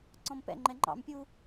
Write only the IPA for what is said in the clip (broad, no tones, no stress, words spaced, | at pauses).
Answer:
ǀɔ̃mpɛ̰ŋ͡ǃɛ ŋ͡ǃɑ̰m pʲu